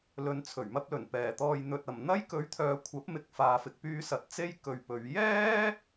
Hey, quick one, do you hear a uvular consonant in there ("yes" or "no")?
no